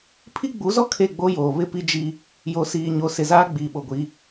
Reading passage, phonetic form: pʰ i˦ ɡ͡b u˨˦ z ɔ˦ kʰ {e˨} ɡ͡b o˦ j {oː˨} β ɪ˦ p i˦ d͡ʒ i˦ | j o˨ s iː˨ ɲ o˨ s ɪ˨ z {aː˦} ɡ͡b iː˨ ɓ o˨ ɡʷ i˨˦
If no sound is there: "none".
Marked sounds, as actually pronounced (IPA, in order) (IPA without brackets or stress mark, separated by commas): e˦˨, oː˨, aː˦